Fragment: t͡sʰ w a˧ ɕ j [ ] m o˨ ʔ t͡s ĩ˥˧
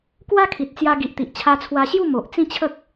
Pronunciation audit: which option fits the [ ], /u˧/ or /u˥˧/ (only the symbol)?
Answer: u˥˧